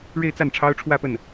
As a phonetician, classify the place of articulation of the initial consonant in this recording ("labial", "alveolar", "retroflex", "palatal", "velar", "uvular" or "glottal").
retroflex